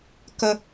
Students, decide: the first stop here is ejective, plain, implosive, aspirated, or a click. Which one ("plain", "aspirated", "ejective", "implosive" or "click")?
plain